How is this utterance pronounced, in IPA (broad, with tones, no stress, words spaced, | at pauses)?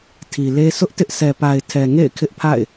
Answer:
tʰi˨le˦ sʊ˦ʔtɪ˦ʔ sɛ˨pa˨ɪ̯ tʰɛ˨ŋḛ˦˨ɪ̯ kʰɪ˦ʔpʰa̰˦˨ɪ̯